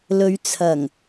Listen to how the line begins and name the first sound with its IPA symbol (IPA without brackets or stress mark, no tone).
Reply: l